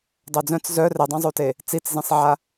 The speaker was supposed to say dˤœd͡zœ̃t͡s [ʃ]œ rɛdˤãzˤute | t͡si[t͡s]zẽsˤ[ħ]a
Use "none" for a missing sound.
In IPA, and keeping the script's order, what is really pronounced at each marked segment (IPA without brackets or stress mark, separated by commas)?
z, t͡s, ʕ